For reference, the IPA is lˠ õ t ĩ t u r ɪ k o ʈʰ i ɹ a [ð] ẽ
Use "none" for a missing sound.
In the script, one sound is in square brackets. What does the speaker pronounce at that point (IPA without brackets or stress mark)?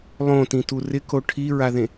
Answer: ð